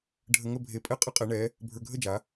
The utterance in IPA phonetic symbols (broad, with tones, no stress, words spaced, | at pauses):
ɖʱə˧ŋə˥˧bʱe˧˩pʼɛ˥˧ qʼə˥qʼe˩˧ɳɛ˩˧ | bʱə˞˧ɡʱə˥˧d͡ʒa˩˧